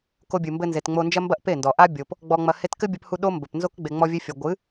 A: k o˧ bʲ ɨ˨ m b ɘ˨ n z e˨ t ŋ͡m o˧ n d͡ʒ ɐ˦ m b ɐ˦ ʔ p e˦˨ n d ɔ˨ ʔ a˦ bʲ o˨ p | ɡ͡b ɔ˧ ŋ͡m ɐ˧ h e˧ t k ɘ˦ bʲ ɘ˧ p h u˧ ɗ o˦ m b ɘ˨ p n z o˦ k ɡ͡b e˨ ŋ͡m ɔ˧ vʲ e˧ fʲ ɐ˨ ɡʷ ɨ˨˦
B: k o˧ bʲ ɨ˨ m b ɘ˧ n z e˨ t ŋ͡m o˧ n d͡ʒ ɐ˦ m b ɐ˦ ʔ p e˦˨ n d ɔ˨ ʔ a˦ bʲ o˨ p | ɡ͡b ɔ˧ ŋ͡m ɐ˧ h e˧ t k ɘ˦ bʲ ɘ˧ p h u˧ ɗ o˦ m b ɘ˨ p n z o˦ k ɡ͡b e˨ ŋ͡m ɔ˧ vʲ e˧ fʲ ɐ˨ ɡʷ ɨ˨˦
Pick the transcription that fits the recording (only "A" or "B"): B